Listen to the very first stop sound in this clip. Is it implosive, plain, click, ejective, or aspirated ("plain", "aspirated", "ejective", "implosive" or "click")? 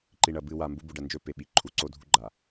click